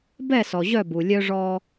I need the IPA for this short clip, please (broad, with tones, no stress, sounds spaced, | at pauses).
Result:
b ɛ˦˨ s ɔ˨ ʑ œ˦˨ b u˨ lʲ œ˦ ʐ ɔ˦